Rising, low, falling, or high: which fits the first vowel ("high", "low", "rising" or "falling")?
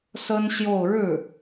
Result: high